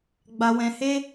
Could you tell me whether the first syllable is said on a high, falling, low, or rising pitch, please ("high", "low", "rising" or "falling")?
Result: low